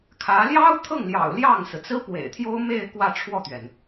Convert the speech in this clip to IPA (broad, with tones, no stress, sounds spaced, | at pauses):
kʰ ä˧˥ l j ɑ˥ ʊ̯ t̪ʰ ɤ˥˩ ŋ l j ɑ̰˨˩ ʊ̯ l j ɑ˥˩ ŋ s ɹ̩˩ t͡s ɹ̩˥ p w ḛ˨˩ ɪ̯ t̪ʰ j o˥ ʊ̯ m e˥˧ ɪ̯ k w ä˥˧ ʈ͡ʂʰ w ɔ˥˩ t̪ ɥ ɛ˩ n